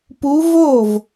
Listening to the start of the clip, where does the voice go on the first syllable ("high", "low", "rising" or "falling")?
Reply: rising